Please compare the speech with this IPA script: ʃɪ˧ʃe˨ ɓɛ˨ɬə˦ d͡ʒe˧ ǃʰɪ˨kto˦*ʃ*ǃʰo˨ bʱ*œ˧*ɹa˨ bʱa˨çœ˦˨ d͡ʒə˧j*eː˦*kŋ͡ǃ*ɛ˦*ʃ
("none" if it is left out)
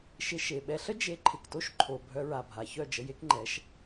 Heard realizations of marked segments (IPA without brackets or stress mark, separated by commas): ʃ, œ˧, e˦, ɛ˨˦